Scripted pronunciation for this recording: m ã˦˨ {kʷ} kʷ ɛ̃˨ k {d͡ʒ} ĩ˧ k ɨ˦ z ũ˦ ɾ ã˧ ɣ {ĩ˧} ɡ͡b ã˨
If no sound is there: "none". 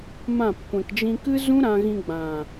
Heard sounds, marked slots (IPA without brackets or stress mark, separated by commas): p, d͡ʒ, ĩ˧